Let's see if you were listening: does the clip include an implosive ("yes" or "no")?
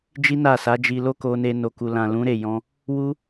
no